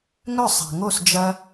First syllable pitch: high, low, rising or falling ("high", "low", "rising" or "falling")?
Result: falling